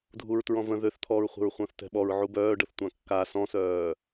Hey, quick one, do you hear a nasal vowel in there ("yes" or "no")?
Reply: yes